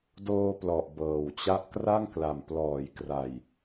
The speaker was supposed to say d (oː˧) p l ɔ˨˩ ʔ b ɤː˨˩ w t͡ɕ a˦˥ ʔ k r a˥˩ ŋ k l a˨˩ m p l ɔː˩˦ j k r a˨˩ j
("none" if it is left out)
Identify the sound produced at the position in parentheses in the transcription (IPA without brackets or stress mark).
oː˧